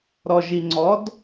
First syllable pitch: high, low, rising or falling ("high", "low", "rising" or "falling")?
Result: low